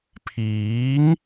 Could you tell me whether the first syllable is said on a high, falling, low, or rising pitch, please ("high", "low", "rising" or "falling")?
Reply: rising